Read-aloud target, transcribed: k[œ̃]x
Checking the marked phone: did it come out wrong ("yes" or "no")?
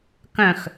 no